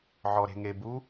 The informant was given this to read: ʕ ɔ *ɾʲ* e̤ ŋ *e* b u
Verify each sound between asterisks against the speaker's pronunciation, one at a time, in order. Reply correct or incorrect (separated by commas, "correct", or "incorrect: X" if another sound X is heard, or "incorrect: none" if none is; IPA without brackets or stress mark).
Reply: incorrect: ɾ, correct